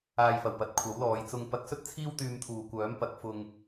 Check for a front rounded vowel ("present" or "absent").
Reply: present